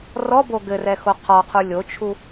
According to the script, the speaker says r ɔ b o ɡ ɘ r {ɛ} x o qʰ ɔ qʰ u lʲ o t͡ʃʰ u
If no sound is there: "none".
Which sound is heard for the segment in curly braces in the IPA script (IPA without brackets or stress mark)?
ɛ